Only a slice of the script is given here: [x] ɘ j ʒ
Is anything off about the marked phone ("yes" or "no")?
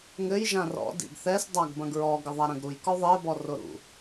yes